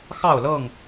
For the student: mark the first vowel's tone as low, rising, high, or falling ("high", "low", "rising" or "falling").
falling